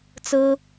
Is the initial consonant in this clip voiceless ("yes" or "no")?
yes